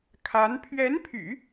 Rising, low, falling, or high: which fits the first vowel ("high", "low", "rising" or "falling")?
rising